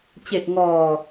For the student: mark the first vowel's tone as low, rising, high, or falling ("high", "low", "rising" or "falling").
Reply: low